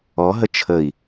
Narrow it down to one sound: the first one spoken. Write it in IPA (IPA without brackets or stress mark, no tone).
ɔ